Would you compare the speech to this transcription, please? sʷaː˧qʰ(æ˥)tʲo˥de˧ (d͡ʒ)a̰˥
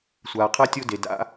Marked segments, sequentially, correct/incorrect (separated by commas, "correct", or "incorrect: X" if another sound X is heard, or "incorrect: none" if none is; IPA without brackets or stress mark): incorrect: a˥, incorrect: d